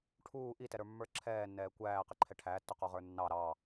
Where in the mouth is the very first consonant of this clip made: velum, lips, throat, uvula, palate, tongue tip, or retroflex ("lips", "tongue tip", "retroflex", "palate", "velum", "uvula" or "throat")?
retroflex